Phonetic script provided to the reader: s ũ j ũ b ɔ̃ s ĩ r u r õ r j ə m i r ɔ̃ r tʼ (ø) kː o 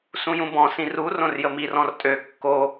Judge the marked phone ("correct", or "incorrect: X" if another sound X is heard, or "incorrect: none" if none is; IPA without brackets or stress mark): correct